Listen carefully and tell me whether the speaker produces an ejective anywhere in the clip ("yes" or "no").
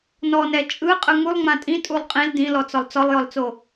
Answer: yes